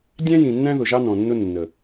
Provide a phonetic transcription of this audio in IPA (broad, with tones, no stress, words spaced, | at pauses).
dʲæ̃˦jĩ˨nːæ̃˦ ðʊ˨ʒɑ˦nɔ̃˨nːʊ˦ nːə˨